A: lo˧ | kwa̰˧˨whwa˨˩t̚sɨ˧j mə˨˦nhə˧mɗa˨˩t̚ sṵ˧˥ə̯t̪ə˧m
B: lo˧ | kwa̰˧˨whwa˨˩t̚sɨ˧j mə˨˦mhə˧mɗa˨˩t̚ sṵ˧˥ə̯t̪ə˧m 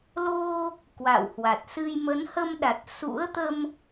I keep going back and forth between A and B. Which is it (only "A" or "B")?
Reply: A